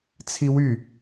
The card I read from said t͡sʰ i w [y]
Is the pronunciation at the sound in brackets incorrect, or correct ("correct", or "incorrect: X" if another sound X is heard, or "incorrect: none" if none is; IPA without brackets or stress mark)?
correct